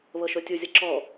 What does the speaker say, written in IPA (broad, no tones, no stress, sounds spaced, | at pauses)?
β ɤ ʃ o tʲ u zʲ ɤ ǁ ɔ